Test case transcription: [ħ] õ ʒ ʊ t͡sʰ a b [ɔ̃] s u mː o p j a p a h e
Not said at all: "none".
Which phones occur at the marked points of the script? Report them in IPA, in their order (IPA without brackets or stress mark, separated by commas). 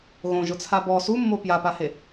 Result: ɣ, ɔ